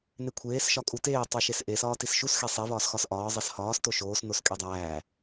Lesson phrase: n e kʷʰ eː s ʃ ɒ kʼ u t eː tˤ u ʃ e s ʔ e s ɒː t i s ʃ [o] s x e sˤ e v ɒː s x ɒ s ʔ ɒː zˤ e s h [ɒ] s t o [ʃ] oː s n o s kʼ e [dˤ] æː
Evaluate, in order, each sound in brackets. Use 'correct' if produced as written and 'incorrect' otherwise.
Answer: incorrect, incorrect, correct, correct

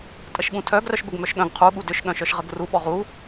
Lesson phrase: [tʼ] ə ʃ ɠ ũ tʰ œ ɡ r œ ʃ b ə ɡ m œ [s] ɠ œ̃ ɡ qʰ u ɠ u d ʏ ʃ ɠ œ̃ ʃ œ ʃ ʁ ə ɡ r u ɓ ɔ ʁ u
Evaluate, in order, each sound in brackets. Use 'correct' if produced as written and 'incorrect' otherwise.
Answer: correct, incorrect

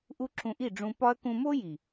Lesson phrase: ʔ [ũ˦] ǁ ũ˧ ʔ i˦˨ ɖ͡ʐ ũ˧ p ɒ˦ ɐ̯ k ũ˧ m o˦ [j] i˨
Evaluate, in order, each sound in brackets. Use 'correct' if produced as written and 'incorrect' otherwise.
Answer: incorrect, correct

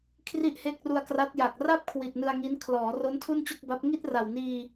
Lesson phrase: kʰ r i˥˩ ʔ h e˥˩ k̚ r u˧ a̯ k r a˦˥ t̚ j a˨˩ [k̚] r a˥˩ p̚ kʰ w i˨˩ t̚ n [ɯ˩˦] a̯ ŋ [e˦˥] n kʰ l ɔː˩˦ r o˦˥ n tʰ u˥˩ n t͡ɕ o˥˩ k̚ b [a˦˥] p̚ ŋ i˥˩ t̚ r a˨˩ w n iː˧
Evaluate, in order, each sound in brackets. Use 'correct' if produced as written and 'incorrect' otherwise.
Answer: correct, incorrect, incorrect, correct

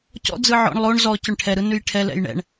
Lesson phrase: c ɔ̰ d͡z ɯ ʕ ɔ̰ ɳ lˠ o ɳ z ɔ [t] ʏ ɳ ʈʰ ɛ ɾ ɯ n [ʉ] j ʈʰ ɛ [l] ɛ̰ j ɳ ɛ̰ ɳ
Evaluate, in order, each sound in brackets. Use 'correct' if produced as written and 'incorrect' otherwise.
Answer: incorrect, correct, correct

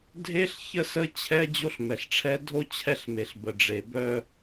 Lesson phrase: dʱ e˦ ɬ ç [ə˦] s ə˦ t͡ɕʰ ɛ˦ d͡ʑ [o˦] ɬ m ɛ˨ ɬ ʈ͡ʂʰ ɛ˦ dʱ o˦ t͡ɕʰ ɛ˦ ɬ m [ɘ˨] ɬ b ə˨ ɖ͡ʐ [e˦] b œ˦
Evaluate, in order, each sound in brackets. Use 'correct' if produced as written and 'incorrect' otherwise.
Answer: correct, correct, incorrect, incorrect

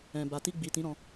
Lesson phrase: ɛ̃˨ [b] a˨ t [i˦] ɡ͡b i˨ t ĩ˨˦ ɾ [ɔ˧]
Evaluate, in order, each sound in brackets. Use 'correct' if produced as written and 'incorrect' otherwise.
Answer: correct, incorrect, incorrect

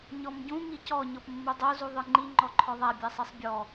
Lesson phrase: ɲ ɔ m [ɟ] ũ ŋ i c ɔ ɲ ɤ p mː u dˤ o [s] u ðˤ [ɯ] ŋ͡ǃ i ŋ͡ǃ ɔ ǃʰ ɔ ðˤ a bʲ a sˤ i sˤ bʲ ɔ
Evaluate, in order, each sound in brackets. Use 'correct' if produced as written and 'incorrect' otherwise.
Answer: correct, incorrect, correct

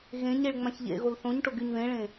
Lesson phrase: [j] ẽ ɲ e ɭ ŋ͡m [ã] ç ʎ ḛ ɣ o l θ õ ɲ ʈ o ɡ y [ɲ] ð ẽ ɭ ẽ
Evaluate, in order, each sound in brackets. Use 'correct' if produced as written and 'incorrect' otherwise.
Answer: incorrect, correct, correct

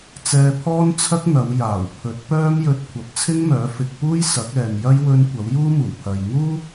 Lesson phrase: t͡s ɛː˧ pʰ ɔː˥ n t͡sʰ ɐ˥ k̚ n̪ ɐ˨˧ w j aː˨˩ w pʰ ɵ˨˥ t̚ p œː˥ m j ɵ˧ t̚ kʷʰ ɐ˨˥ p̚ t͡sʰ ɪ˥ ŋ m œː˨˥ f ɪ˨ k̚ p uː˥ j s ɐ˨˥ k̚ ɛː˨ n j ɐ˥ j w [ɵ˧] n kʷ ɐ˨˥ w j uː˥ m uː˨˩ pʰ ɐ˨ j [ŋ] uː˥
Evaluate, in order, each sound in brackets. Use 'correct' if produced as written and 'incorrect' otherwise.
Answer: correct, correct

